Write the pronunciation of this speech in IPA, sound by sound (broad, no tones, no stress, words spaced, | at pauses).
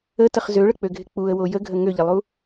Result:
ətəχ zøɭək͡pøɡʱɪ k͡puə̯wo jəɡʱə ŋøʎɪlˠu